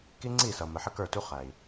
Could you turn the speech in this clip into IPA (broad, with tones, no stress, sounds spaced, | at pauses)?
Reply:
k i˦ ŋ͡ǀ i˦˨ s ʌ˨ m ə˨ ħ ə˦ k ə˞˦˨ t u˦ χ æ˨ i̯